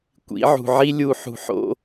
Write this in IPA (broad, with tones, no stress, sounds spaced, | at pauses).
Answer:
kʷ ḭ˨˦ ʕ ṳ˨ ʕ i˦ lʲ u˨ ħ ṳ˨ ħ o̰˦